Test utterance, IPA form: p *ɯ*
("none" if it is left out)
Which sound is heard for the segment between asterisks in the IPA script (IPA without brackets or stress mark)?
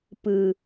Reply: ɯ